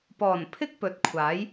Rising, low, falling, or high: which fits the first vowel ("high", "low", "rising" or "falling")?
low